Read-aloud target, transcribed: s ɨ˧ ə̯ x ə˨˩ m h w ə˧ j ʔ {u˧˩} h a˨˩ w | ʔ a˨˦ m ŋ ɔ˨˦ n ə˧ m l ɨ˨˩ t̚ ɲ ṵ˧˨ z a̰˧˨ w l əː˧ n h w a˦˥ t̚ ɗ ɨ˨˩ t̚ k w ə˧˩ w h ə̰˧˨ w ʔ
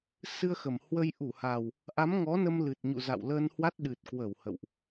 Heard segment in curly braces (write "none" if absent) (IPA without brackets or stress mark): u˧˩